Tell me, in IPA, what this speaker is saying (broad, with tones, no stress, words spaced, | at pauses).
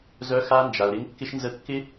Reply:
zœ˧xa˧nd͡ʒa˨ʊ̯ɾɪ˧ŋ kːɪ˧ʃnzə˧kːɪ˦